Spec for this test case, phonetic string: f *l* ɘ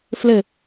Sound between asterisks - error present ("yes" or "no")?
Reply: no